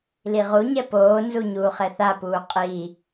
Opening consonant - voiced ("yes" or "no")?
yes